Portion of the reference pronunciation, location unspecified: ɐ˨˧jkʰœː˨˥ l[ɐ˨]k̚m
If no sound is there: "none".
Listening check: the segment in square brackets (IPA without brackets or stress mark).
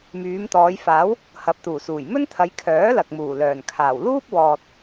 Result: ɐ˨